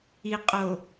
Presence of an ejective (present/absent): present